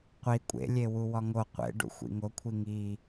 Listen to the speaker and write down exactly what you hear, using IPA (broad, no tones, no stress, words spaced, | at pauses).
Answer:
qʷi kʷʼḛlʲewu wɒŋo qʷḛ ɖṵxʷḭŋo kʷʰiŋi